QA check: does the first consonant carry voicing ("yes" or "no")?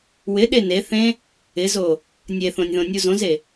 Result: yes